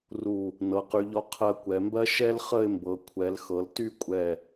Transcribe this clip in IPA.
ru˧˩ | nɤ˩˧qy˩˧ʎɔ˧ qʰɜ˧kʷɛ˩˧mbɜ˥ ʃɛ˥lχə˥˧ɪ̯mbɤ˩˧ kʷʰɛ˩˧lxɤ˩˧lty˥˧ kʷʼɛ˧˩

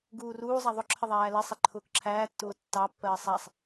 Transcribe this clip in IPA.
ɡuːruːzˤa ðˤʊǁʰə ðˤæːlɛsˤe ǃʰʊːkǁʰæːtːʊː tːɑpːɜː sˤæsˤ

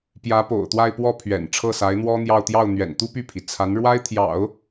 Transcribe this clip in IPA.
pjä˧˥po̰˨˩ʊ̯t̪wa˥˧ɪ̯pwɔ˥˩ pʰɥɛ̰˨˩n ʈ͡ʂʰɤ˥˩sa˧˥ɪ̯n̪wɔ˥n̪jɑ˥˧ʊ̯ t̪jɑ˥˩ʊ̯n̪ɥɛ̰˨˩n t̪u˥py˥˩pʰi˩ t͡sʰa˧˥nɻwa˥ɪ̯t̪ʰjɑ̰˨˩˦ʊ̯

